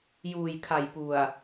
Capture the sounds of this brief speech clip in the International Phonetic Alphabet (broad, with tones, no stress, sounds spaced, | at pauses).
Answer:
j uː˨˩ j kʰ a˨˩ j p u˨˩ a̯